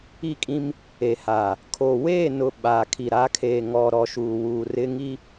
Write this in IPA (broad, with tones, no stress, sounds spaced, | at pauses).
i˦˨ kʼ ĩ˦ m | e˨ h a˨ | kʰ o˨ w eː˦˨ n ʊ˨ ɓ aː˨ kʰ i˨ ɾ a˨˦ kʰ e˨ ŋ ɔ˨ ɾ ɔ˨ ʃ uː˨ w uː˨ r ɪ˦ ŋ i˦